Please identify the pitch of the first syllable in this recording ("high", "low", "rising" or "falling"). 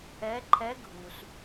rising